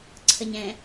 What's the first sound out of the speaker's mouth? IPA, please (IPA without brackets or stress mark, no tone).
ǀʰ